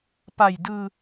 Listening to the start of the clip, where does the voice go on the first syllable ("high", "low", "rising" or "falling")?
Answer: low